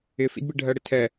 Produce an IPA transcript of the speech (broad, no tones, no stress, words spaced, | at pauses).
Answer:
ɪfḭdbi ɖʱɜɽɪtʰɛ